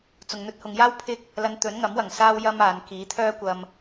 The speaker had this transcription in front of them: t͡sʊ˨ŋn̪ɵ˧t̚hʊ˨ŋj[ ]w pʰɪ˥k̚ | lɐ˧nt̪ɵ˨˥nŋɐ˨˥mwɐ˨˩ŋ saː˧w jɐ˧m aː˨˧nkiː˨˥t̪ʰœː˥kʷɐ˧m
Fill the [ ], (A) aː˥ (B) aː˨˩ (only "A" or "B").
A